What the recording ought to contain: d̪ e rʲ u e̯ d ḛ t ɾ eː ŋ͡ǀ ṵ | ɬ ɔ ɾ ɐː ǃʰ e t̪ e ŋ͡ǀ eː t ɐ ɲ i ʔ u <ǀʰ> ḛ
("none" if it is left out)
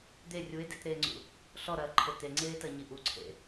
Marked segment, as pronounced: ǀʰ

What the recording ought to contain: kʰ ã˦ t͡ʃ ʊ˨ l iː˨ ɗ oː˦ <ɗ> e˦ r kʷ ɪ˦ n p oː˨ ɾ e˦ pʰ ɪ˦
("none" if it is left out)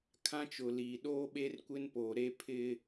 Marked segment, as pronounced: ɓ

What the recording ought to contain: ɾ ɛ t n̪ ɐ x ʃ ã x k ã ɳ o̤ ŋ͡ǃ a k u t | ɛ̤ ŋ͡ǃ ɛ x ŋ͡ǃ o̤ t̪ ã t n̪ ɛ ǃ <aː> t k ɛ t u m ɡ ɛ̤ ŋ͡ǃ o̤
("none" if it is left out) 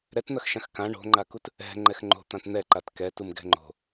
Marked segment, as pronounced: a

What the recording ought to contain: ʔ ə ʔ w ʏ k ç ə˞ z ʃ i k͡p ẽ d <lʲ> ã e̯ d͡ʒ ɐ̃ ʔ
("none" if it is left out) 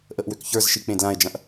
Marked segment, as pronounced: l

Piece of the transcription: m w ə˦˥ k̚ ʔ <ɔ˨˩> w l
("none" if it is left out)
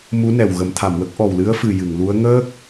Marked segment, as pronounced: ɔ˨˩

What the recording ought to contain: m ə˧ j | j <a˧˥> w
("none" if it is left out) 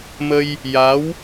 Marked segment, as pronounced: a˧˥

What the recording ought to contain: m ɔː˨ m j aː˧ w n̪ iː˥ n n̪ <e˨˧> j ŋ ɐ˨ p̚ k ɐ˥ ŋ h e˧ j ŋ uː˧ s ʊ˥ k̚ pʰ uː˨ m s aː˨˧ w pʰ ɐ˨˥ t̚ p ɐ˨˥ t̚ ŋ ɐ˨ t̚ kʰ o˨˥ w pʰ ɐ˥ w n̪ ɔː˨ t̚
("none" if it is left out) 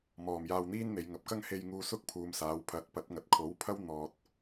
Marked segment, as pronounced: e˨˧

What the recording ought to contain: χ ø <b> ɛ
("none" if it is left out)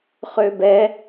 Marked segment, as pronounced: b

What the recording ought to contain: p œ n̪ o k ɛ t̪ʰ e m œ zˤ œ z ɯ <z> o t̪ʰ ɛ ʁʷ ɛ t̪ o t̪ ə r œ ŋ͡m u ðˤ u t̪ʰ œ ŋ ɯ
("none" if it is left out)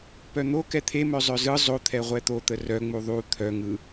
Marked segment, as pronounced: zˤ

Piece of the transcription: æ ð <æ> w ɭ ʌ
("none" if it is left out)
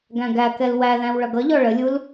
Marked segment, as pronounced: æ̃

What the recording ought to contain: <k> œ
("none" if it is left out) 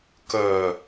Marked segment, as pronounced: k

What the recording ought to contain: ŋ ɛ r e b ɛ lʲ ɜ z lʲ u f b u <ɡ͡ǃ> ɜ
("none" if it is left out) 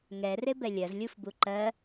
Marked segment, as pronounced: ǃ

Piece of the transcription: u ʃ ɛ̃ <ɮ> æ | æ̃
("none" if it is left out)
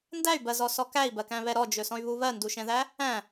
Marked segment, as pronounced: ð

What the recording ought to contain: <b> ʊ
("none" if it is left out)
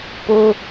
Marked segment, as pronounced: p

